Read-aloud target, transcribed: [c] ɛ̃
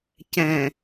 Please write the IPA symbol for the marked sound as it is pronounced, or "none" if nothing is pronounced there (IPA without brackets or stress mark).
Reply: c